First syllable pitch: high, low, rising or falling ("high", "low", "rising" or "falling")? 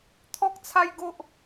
high